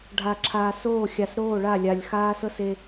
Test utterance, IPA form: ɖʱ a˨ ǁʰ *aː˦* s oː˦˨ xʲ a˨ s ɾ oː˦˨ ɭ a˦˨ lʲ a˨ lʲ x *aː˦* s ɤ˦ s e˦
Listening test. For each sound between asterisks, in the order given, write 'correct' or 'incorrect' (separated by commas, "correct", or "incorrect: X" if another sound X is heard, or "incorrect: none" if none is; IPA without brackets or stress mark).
incorrect: aː˨, correct